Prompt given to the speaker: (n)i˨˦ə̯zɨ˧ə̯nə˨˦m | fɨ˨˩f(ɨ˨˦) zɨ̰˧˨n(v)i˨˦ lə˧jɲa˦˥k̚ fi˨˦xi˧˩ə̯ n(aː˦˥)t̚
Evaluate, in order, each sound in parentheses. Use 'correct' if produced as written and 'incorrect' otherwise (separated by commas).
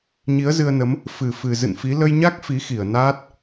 incorrect, incorrect, incorrect, correct